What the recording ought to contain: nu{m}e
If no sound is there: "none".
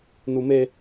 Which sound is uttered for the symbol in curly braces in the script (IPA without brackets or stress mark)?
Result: m